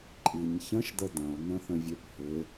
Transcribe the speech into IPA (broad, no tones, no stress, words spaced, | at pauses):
ǃʼiɲ çə̃ʃd̪ə d̪ɐ̃o̯n̪ə̃θə̃vʲøp hɪ